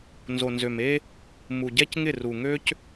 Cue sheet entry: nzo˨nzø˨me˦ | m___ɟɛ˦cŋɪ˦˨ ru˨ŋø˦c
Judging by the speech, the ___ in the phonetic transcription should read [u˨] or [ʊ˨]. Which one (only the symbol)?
u˨